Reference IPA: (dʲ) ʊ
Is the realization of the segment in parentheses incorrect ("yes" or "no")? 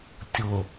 yes